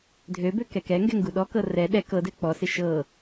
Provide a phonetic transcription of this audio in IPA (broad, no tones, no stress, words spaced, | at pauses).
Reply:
dʱøbø kɛkɛŋɡɛ ŋɡuɗɔkɤ rɛ ɗɛ kɤdɛ k͡pɔsɪ ʃɤ